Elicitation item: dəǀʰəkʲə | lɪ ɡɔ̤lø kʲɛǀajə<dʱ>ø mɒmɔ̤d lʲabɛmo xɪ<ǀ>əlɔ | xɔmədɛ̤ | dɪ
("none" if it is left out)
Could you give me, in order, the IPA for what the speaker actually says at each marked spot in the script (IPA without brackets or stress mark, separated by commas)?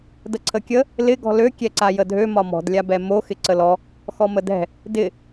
dʱ, ǀ